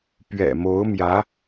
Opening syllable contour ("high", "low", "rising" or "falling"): low